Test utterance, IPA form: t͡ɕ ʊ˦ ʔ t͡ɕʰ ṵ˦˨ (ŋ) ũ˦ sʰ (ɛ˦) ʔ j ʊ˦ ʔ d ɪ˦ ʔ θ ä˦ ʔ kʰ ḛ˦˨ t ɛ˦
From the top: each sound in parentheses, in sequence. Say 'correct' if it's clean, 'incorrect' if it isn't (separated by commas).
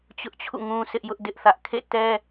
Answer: correct, incorrect